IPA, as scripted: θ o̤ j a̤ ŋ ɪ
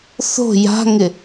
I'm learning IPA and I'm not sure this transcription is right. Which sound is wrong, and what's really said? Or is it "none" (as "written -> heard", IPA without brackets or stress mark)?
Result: none